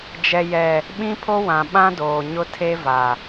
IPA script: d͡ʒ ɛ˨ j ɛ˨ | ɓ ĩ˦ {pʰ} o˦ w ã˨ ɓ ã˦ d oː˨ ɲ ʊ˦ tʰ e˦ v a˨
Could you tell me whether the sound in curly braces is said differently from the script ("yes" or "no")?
no